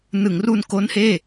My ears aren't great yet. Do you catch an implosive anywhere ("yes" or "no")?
no